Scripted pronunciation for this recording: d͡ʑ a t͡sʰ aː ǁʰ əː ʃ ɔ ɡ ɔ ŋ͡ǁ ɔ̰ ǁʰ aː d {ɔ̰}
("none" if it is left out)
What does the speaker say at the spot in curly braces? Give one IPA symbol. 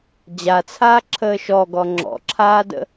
ə̰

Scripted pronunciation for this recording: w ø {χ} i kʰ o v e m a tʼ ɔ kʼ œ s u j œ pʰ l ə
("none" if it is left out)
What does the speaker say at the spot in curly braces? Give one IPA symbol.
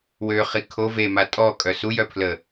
χ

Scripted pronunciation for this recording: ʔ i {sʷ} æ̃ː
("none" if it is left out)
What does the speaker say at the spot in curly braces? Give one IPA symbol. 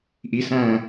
s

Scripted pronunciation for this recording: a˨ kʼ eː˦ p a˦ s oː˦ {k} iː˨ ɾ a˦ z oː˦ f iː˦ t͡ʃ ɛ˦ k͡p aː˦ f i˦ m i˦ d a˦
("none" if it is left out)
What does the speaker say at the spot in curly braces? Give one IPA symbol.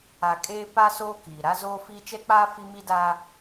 k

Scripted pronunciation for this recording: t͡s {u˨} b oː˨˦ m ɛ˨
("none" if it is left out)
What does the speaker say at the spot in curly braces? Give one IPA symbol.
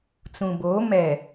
ũ˨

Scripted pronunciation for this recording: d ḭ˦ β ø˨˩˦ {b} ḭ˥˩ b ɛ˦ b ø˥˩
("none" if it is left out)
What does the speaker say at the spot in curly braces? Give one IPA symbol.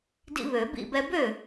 b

